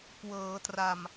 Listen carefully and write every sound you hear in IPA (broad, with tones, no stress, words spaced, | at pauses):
kwɤː˩˦tra˨˩m